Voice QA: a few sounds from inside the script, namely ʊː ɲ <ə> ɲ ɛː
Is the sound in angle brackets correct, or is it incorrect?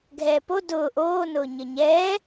correct